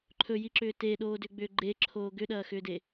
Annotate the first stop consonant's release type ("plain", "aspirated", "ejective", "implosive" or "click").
click